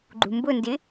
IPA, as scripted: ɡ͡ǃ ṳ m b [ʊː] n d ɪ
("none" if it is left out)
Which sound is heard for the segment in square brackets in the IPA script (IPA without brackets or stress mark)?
ʊ